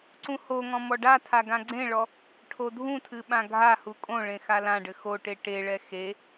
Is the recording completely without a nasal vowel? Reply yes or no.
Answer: no